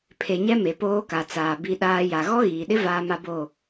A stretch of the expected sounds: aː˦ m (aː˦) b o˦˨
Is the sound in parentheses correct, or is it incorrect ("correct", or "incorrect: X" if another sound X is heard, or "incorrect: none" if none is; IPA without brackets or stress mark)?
incorrect: a˦